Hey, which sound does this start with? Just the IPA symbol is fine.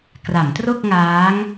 k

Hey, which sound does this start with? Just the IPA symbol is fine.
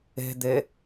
e̤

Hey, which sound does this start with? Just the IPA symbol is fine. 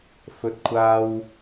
f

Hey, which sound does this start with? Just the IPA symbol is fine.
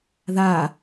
ð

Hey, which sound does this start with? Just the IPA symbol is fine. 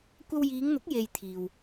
kʷ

